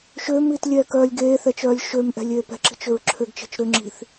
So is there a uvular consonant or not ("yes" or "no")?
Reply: no